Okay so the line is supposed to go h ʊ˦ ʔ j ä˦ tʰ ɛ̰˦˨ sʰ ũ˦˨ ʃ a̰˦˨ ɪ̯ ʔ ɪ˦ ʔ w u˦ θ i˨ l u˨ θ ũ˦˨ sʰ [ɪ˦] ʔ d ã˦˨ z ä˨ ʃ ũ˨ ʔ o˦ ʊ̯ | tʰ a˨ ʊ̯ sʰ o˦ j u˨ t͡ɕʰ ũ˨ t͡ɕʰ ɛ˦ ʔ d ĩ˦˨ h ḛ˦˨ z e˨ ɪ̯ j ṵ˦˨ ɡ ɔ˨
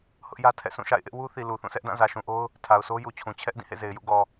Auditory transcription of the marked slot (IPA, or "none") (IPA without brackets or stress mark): ɛ˦